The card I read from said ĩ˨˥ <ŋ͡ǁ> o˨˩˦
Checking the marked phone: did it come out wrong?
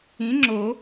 no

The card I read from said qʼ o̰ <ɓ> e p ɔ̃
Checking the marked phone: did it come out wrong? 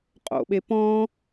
no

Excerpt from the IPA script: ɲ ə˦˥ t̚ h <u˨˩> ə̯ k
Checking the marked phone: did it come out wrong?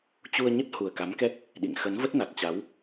no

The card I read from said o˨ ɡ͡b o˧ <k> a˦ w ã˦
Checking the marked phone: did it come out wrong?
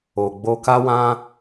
no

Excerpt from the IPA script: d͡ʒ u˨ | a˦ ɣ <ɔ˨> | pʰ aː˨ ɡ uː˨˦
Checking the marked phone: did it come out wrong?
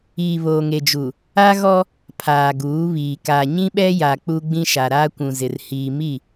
yes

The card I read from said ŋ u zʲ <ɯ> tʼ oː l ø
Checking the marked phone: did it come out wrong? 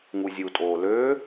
yes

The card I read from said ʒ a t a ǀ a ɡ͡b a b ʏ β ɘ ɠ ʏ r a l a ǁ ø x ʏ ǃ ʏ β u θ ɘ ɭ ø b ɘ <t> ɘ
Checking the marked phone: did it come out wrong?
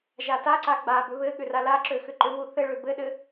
yes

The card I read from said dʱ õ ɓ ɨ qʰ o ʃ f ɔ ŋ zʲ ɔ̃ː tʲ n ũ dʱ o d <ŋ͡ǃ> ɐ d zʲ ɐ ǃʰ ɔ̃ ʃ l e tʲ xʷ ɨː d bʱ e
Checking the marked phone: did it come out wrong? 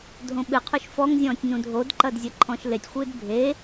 yes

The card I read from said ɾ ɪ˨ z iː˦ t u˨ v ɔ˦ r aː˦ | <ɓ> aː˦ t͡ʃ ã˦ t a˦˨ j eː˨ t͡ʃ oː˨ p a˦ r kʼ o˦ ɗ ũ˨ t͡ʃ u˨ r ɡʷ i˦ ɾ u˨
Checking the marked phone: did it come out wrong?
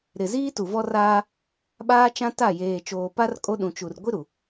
no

